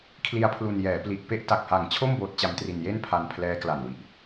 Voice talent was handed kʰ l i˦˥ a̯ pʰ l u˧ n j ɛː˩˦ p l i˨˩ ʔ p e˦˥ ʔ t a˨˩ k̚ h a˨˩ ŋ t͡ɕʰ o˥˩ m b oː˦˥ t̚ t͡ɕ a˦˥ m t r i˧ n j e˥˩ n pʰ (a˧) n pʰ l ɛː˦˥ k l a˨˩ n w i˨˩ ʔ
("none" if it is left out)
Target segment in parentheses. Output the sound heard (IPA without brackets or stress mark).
a˧